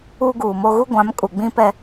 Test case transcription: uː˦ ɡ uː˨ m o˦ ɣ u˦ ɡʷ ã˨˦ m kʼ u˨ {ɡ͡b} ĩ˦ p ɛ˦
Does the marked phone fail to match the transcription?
no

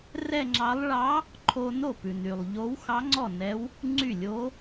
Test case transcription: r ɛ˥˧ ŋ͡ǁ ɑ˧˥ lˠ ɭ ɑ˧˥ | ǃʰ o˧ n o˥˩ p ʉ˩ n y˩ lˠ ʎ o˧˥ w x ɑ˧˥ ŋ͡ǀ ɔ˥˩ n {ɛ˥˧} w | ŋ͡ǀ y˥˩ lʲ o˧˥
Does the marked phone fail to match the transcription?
yes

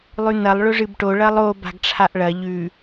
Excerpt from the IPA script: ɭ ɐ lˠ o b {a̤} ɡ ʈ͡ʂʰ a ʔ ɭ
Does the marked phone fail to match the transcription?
no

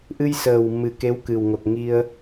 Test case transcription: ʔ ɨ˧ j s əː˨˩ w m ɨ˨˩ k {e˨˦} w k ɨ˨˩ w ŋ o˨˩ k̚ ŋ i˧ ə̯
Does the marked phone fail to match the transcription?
no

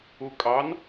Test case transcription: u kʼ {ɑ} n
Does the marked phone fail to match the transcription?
no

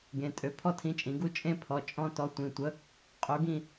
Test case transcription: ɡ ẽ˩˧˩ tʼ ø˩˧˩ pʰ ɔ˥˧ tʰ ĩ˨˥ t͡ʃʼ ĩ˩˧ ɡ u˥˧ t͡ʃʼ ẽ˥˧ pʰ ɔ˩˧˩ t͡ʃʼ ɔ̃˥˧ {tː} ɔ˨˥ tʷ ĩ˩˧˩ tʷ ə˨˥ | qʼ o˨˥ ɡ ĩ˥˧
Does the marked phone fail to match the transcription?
yes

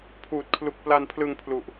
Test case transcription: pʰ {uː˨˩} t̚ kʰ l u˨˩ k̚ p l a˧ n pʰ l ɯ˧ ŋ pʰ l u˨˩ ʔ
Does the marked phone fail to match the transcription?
no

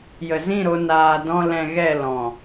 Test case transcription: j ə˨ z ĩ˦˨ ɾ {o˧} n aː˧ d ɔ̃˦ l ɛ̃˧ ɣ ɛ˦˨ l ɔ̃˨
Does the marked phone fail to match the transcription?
no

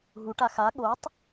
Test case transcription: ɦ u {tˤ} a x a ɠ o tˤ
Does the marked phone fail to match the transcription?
yes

